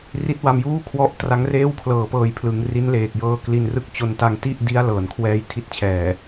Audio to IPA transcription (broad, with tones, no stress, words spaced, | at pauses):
ri˦˥t̚wa˧mjuː˥˩ kʰwɔ˦˥ʔ tra˦˥ŋreː˥˩wkʰlɤː˨˩ pɤː˧jpʰlɯ˩˦ŋ ri˦˥nleː˨˩k̚jɤː˧ kli˧nrɯ˥˩k̚ t͡ɕo˧nta˧ŋti˥˩ʔ di˦˥a̯lɤː˩˦n kʰwɛː˧jtʰi˦˥t̚t͡ɕʰɛː˨˩